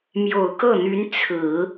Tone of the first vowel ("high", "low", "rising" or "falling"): low